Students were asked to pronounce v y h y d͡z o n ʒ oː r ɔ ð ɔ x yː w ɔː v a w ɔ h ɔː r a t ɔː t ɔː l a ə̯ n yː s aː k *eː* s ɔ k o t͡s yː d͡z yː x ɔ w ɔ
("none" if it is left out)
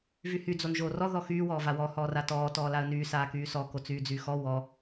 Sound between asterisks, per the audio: yː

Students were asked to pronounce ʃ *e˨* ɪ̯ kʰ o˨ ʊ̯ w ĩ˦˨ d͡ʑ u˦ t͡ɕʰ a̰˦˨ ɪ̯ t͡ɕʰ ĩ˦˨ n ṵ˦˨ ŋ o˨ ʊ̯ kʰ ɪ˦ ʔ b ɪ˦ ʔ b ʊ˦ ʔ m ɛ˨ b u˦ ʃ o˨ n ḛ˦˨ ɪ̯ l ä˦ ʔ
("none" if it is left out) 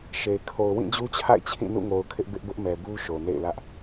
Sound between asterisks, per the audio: e˨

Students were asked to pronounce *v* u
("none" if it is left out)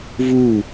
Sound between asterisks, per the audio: v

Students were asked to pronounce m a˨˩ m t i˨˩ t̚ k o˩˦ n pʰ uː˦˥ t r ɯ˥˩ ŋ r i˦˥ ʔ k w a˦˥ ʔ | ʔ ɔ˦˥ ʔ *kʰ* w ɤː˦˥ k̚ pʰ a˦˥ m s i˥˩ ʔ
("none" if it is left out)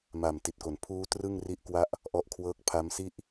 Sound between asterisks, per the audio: kʰ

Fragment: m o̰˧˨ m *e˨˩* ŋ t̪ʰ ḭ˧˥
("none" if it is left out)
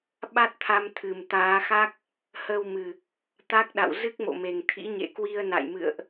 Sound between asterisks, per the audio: e˨˩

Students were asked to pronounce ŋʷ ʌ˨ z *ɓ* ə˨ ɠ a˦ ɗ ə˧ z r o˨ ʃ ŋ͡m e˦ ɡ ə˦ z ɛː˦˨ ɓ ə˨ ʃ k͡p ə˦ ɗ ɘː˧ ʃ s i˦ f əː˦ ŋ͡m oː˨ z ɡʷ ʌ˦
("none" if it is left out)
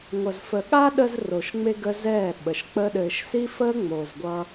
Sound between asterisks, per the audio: f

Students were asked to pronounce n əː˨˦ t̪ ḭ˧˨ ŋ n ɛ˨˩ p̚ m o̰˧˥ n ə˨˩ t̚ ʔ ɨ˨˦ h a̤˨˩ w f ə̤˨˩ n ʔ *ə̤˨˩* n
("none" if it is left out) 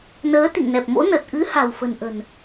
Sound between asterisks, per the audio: ə̤˨˩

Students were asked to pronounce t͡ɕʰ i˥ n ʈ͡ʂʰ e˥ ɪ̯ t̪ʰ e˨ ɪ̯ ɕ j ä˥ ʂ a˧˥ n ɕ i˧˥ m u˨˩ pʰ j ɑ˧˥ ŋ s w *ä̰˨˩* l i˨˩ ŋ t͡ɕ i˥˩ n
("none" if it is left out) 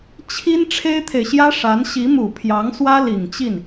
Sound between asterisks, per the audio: ä˥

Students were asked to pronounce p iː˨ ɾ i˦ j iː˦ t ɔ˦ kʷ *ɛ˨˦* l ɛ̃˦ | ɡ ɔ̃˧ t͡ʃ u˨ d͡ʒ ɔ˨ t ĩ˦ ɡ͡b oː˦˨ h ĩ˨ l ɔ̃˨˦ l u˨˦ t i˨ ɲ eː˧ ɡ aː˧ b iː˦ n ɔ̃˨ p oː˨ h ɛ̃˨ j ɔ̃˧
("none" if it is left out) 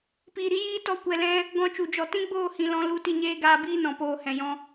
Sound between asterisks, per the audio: ɛ˧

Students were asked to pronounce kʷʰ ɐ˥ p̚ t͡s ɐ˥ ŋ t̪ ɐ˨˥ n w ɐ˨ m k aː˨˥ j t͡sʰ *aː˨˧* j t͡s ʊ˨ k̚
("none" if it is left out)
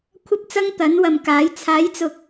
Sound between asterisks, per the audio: aː˨˥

